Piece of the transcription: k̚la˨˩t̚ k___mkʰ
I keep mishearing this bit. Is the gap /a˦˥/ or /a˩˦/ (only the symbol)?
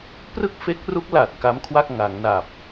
a˦˥